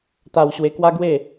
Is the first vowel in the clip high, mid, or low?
low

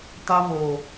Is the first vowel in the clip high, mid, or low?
low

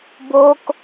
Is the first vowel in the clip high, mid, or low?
mid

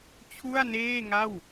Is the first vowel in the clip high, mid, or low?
high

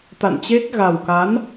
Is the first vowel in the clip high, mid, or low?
low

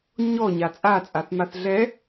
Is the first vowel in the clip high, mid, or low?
mid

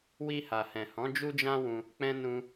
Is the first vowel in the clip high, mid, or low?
high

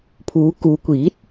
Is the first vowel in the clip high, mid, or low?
high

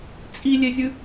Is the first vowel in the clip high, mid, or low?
high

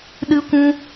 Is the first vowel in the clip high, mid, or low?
high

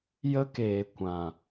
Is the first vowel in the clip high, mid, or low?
mid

